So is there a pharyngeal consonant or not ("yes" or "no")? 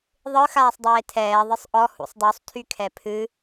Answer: no